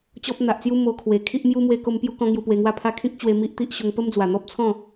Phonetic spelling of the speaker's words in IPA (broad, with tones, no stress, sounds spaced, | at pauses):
t͡ɕ ɔ˦ p̚ n̪ a˨ ʔ t͡s j u˦ m o˧ kʰ w e˨˩ kʰ i˦ ʔ m j u˦ m w e˧ k o˧ m p j u˧ k ɔ̃˧ ŋ j u˧ p w e˧ ŋ w a˦ pʰ a˦ kʰ ĩ˦ k̚ t͡ɕ w e˧ m i˦ ʔ t̪ i˦ ʔ ɕ o˧ ŋ p ə˦ m d͡z w a˨˩ n̪ ɔ˦ p̚ t͡sʰ ɔ̃˥˧